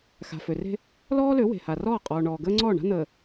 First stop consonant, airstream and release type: ejective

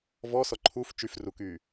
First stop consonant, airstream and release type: click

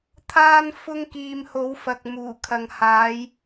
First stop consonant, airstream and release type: aspirated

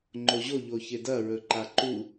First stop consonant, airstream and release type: click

